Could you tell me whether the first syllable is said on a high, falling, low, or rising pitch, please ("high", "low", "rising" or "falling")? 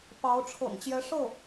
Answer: rising